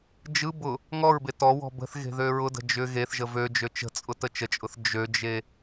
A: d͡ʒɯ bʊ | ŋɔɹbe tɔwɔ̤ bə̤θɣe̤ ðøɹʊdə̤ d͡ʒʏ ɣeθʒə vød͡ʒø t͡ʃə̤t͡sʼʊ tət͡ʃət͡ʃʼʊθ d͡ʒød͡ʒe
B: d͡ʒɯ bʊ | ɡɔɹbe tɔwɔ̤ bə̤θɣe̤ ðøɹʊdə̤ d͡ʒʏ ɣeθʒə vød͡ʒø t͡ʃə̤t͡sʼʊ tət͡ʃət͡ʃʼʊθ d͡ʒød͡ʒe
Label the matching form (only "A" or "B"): A